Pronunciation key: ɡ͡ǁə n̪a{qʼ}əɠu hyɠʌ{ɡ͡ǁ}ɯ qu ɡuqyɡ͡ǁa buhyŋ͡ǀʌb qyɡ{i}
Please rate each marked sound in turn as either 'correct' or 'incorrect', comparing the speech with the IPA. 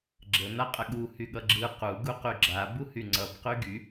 correct, correct, incorrect: y

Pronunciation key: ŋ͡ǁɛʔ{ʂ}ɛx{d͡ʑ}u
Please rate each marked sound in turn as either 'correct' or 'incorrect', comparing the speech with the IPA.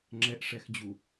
correct, correct

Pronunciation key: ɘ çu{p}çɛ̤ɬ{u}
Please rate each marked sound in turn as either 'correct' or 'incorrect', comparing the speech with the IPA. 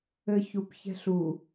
correct, correct

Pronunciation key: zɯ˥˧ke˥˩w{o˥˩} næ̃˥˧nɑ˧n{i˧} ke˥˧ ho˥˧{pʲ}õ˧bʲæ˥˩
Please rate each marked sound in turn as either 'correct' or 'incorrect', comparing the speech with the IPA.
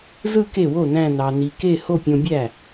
correct, correct, correct

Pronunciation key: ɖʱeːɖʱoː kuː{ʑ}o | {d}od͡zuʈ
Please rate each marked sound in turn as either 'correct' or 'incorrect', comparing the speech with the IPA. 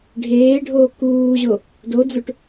correct, correct

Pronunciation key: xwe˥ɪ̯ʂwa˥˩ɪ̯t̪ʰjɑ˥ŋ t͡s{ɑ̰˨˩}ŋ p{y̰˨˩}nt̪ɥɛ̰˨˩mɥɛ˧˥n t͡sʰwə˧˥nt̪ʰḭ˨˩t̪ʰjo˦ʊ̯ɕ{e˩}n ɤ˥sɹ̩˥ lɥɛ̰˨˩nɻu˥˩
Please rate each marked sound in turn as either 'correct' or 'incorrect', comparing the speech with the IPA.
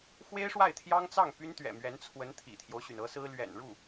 incorrect: ɑ˥˩, incorrect: y˥, incorrect: y˩

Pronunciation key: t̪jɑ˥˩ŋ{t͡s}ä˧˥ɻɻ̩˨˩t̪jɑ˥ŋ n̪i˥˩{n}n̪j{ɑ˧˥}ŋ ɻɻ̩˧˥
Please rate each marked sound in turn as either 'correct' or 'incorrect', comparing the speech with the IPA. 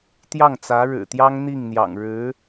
correct, incorrect: ŋ, incorrect: ɑ̰˨˩

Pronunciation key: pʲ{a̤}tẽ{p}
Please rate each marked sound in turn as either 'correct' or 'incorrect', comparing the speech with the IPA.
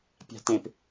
correct, correct

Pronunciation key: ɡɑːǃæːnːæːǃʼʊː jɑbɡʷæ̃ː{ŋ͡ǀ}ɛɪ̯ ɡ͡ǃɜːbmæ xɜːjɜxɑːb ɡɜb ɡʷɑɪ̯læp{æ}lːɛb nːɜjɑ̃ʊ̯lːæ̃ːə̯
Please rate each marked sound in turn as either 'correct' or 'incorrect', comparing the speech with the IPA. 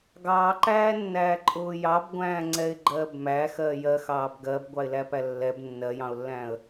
correct, correct

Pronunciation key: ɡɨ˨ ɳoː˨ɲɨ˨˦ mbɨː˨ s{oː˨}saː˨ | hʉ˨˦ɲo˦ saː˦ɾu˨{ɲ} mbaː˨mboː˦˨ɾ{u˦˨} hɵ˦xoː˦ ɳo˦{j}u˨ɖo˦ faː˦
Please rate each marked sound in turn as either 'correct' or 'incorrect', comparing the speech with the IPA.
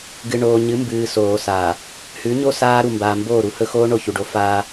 correct, incorrect: none, correct, incorrect: ç

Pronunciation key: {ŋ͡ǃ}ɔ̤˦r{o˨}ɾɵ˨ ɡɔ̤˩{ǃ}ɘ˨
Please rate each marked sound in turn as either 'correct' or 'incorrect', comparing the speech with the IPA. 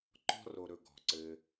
incorrect: ǃ, correct, incorrect: ǀ

